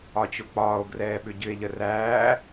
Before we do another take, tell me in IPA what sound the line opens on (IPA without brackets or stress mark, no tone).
ɒ